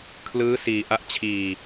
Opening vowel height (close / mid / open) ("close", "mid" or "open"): close